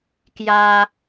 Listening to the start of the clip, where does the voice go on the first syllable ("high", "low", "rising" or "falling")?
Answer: high